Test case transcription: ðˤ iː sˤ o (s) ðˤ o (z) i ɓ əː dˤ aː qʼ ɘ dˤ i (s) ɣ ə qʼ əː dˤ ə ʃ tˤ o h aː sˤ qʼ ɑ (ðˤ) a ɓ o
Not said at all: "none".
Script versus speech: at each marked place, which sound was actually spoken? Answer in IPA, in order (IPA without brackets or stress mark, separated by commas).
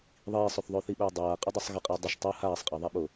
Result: θ, θ, sˤ, ðˤ